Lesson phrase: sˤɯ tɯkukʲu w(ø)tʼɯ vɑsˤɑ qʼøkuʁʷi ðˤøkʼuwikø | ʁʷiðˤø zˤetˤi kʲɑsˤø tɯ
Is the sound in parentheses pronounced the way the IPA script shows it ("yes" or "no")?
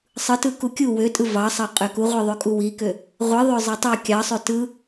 yes